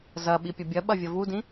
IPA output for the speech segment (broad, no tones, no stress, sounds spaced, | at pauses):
z ɐ ɓ i pʲ ɐ bʲ ɐ ɓ ɐ vʲ ɐ v u d ĩ